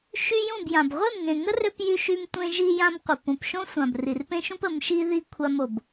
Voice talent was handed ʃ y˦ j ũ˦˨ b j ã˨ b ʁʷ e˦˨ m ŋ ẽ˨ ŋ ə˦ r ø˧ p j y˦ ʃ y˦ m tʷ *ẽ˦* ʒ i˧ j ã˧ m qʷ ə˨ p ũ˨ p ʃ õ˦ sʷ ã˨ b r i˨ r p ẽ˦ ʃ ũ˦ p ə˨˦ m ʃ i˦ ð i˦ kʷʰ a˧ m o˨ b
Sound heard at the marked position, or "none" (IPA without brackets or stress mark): ẽ˦